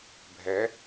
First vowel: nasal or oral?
oral